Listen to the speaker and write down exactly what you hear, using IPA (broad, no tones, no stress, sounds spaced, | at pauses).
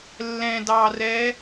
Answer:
lː ɛ̃ d ɑ r ɛ